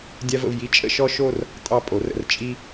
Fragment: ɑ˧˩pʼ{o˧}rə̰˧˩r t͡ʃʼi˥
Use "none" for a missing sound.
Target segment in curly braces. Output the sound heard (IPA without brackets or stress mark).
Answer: o˩˧